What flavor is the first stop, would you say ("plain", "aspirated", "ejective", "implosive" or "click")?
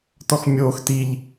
plain